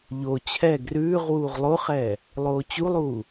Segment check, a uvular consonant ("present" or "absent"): present